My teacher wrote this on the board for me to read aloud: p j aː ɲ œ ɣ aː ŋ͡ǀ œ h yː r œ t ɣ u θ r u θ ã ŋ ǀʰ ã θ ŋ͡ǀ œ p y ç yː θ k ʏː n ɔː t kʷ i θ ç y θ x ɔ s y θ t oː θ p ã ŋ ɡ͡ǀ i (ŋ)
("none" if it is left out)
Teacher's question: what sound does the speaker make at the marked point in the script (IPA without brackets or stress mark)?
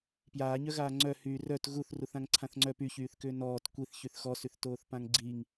ŋ